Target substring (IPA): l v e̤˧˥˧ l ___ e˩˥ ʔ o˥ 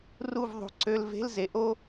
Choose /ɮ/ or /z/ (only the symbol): z